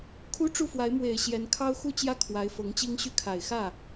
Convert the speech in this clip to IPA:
kʰu˥ʈ͡ʂu˥˩fwa˧˥ɪ̯ mwe˨˩ɪ̯ɕjɛ˧˥n kʰɑ˥ʊ̯ xu˥˧t͡ɕjä˥˩ kʰwa˧˥ɪ̯fɤ˧˥ŋt͡ɕi˥ŋɕy˥˩ kʰa˨˩ɪ̯ xä˥˩

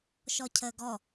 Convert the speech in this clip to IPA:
ʃɔcʰəːɡɔ

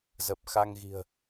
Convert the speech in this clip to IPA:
zə˨˩p̚xa˧ŋɣi̤˨˩ə̯

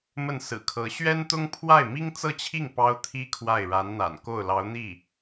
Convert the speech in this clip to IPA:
mə˥˩nsɹ̩˨˩kʰɤ˧˥ ɕɥɛ˥nt̪ʊ˥ŋ pʰwa˥˩ɪ̯mi˥ŋt͡sɤ˥˧t͡ɕʰi˥˩ŋ pɑ˥ʊ̯t̪ʰi˥ kʰwa˥˩ɪ̯ɻa˧˥nn̪a̰˨˩n ko˥˩ʊ̯lɑ˧˥ʊ̯n̪i˥˩

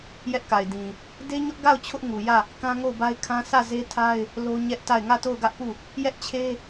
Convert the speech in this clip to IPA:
jɛ˦ʔka˨ɪ̯dĩ˨ | de˦ɲʊ˦ʔɡa˦˨ʊ̯ t͡ɕʰʊ˦ʔŋu˨jä˦˨ | kã˦ŋo˦˨ʊ̯ba˦ɪ̯kʰã˦ sä˦˨ze˦tʰa˦ɪ̯ | lo˦ɲɛ˦ʔta˦˨ɪ̯ ŋä˦˨to˦˨ʊ̯ɡä˦ʔpu˦˨ | jɛ˦ʔt͡ɕʰe˦

